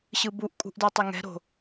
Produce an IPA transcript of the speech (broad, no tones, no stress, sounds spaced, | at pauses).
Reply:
ɕ ɯ b u ʔ kʼ ṳ ʔ d ɛ tˤ ɛ ŋ ɛ̤ ɾ o̤